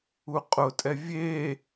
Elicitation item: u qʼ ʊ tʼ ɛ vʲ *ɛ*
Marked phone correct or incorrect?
incorrect